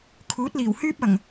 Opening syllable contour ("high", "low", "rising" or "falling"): rising